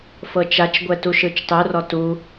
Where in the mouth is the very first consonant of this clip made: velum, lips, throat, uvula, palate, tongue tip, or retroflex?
lips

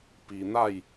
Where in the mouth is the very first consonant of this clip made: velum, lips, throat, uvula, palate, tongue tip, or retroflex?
lips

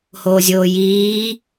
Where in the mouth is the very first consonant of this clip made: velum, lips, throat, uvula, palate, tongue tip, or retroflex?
throat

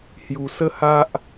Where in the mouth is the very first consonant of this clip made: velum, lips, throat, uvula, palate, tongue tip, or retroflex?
throat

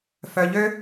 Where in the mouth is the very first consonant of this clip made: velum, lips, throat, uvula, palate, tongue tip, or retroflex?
lips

